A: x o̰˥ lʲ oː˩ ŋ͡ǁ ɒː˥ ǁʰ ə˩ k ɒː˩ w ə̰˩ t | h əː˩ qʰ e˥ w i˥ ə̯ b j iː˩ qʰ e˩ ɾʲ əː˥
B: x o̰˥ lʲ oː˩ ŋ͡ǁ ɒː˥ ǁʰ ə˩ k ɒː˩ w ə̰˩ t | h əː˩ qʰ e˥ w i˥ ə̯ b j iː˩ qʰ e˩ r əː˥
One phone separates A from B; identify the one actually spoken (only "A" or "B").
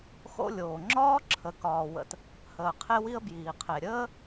A